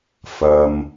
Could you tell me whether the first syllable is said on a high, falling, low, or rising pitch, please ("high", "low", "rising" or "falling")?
low